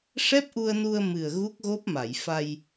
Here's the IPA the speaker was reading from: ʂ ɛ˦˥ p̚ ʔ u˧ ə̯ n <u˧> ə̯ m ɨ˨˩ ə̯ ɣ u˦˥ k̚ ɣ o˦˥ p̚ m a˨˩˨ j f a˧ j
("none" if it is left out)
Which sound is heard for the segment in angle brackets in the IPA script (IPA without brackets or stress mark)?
u˧